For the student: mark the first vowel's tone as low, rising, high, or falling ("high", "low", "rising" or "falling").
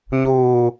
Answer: low